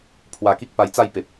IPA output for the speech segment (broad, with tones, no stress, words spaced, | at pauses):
pʰwa˧ ki˦k̚pa˧jt͡sa˥˧jpe˨p̚